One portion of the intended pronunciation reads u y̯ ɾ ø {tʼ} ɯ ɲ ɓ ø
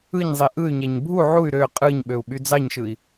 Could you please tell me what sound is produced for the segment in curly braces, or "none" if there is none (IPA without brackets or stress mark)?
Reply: qʼ